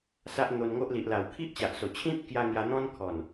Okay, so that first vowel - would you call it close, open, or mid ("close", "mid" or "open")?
open